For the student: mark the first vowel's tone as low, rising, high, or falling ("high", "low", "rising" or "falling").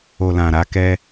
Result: low